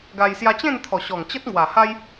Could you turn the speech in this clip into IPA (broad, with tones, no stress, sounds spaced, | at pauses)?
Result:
ɡ a˧ j s j a˧ t͡ɕ ẽ˥˧ n t̪ʰ ɔ˨˩ ɕ ɔ˨˩ ŋ t͡ɕ ə˦ t̚ ŋ w a˨˩ h a˦ j